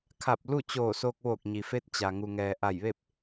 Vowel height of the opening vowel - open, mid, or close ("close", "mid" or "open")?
open